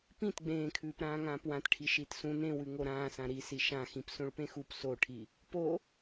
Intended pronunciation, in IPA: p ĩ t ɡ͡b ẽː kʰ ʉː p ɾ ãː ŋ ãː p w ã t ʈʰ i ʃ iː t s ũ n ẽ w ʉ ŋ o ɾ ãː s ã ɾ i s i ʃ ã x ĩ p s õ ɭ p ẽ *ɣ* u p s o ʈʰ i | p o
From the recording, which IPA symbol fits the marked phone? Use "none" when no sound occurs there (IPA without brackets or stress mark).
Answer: x